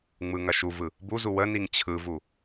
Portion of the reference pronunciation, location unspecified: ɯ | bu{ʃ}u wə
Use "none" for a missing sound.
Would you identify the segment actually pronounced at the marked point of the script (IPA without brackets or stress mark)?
z